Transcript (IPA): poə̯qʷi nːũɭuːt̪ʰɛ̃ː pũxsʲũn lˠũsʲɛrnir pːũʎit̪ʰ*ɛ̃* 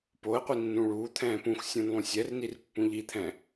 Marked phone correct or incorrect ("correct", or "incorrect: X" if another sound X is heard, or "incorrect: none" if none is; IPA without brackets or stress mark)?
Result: correct